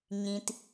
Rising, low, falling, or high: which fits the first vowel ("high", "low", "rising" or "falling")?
low